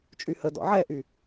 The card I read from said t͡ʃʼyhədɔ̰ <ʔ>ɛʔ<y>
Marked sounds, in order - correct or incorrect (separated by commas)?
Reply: incorrect, correct